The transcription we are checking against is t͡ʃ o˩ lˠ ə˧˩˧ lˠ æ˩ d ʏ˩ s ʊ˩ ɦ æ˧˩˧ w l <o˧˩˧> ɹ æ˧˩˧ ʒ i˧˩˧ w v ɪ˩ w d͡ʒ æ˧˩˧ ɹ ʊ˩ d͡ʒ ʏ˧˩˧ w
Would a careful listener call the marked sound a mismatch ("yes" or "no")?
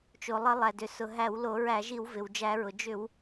no